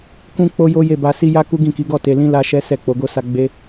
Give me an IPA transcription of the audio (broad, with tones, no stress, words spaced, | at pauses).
kũ˦k͡po˦jo˦je˦˨ ba˧si˦ ja˦ku˦ ɡĩ˦˨ki˨˦ɡɔ˦˨ te˧lĩ˦ la˦ʃɛ˦ sɛ˦˨k͡po˨˦ɡo˦sa˦ ɡ͡be˦